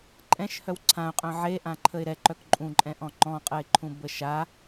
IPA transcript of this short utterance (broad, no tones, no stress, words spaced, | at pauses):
ǃʼɛ̃ʃhœw ǀʰãʊ̯qʼœ̃ ʕeʔãǃʰəɪ̯ ɾɛǃœk ǃʼũǃʼɛ̃ʔɔ̃ ŋ͡ǃɔ̃qʼəɪ̯ǃʰũbə ʃa